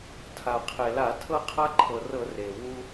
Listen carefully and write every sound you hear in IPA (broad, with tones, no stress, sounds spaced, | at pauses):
tʰ a˩ qʰ e˩ l a˧˩˧ tʰ ɤ˦ qʰ a˦ ǃʰ ɤ˩ r ɤ˧˩˧ r e˩ w u˦